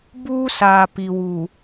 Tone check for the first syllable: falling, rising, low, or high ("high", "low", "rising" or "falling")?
high